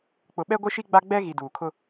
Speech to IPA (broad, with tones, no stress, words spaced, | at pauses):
k͡pʊ˨ɓɛ˦ɡʷɪ˦ʃi˦ ɡ͡ba˦ ɡ͡bɛ˦ ɣi˨duː˨kʰʊ˦